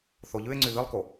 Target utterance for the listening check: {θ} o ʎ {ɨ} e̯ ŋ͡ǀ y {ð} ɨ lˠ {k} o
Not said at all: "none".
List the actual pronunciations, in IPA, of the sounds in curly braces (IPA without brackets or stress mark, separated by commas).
θ, ʉ, ð, k